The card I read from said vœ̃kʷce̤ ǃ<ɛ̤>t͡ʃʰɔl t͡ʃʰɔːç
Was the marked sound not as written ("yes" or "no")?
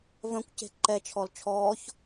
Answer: yes